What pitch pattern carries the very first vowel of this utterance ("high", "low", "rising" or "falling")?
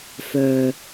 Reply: low